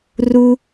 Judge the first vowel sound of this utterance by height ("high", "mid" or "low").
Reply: high